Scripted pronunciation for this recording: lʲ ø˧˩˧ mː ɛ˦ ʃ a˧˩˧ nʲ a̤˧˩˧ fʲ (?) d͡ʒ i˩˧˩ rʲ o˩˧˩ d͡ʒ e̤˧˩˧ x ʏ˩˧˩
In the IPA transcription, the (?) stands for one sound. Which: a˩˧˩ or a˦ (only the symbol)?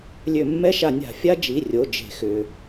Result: a˦